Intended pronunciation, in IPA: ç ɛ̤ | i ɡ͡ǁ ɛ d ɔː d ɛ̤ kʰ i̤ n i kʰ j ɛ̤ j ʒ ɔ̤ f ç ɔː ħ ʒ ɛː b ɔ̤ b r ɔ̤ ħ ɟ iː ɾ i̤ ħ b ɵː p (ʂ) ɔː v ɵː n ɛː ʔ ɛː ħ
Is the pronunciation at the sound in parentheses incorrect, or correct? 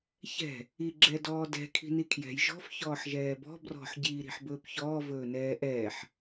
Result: incorrect